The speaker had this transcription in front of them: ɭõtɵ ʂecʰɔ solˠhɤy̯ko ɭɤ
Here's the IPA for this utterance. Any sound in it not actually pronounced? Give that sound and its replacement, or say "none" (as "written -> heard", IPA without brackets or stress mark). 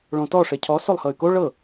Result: ɵ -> ɔ